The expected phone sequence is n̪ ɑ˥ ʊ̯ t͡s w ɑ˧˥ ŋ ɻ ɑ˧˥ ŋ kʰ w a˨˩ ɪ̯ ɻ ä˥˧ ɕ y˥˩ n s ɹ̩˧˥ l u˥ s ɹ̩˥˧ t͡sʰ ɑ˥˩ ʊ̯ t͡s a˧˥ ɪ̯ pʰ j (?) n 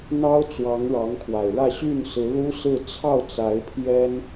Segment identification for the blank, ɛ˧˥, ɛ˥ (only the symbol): ɛ˥